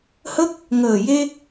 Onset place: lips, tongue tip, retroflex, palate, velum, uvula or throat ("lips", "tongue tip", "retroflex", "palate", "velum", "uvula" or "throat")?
throat